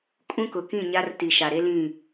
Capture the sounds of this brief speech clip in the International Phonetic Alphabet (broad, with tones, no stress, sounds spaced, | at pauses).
kʼ ũ˦ k ʊ˨ k ĩ˦˨ ɲ a˦ r t i˨ ʃ a˨ ɾ e˦ l ĩ˦˨